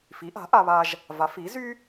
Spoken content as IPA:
fi˩˥ʔa̤˩˥ʔa˧βa˧ʒ | va˩˥fi˩˥zy˥

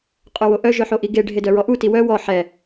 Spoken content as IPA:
qʼøwoʔœ ʒœħoʔiɡe ɖʱedœɹɔʔu tiwœ wɔ ħɛ

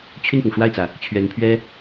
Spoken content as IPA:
t͡ɕʰy˥˩npʊ˩ŋʂwa˥˩ɪ̯t͡sä˩ | t͡ɕʰɥɛ˧˥npʰɥɛ˥

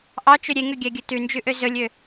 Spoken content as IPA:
ʔɑt͡ʃɵ ɾʲeŋøɡʲæɡʲɵ tʉnd͡ʒʉʔø zɵlʲø

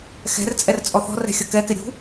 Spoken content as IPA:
xɛ̤rt͡sʼɛr t͡sʼɔθɔ̤rɛ̤ xʲʌkɛkɪ ɾʲṳ

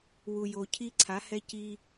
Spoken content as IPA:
wu˨jo˨ cʰi˦ǀʰa˨˦hɛ˦ ci˦

